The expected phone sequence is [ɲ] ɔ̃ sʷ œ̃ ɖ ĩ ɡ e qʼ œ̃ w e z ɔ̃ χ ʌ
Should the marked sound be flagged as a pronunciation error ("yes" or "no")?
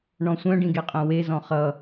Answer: yes